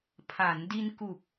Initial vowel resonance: oral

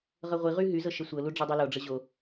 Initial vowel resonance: oral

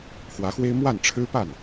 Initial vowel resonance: oral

